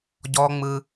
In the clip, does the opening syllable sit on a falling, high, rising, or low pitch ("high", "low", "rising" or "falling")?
high